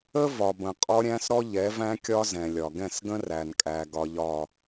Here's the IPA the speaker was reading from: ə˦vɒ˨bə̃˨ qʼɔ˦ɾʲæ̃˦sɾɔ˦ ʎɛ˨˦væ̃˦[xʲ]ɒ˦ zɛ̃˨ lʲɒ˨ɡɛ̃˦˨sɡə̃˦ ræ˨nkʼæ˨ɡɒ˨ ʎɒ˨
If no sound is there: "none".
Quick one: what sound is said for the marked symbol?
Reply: kʲ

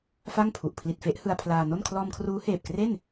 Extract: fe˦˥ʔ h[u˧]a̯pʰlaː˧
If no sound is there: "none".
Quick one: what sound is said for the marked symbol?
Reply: ɯ˧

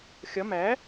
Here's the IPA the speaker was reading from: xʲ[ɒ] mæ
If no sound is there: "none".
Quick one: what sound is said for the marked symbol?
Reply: ɒ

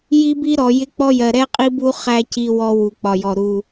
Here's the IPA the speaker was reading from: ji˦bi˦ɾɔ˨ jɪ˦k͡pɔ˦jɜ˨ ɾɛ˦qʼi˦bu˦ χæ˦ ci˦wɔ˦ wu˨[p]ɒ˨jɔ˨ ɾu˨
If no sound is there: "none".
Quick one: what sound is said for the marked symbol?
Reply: k͡p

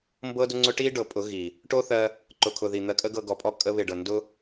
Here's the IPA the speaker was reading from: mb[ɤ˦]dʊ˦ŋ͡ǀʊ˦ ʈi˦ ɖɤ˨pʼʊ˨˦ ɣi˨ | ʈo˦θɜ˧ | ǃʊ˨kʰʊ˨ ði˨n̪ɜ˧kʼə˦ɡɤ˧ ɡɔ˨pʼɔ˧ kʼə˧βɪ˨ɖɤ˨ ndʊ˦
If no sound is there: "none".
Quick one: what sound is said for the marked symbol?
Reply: ɤ˦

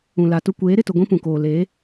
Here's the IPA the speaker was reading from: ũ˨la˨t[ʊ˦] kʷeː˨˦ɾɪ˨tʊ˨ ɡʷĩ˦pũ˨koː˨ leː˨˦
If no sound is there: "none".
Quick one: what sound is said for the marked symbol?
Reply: ʊ˦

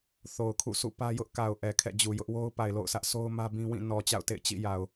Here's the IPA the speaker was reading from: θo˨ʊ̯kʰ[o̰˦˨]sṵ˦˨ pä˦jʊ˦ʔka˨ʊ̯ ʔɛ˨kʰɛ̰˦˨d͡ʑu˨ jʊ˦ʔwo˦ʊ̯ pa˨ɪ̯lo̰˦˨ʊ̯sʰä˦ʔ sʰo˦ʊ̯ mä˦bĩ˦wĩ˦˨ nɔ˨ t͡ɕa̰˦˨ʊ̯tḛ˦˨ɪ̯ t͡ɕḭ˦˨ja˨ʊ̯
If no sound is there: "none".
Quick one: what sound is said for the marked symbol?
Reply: ṵ˦˨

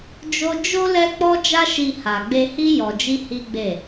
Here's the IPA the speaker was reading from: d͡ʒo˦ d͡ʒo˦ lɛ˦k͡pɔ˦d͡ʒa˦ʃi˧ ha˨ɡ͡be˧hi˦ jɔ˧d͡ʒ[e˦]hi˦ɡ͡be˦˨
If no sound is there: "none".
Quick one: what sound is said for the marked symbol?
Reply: i˦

